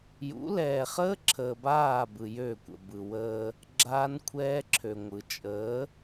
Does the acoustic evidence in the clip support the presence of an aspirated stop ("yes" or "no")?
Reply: yes